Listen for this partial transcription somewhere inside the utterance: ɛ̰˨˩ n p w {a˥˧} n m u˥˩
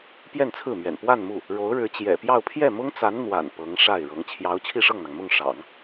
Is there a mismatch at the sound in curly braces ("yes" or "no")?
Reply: no